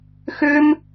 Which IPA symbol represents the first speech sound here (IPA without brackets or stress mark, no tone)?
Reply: x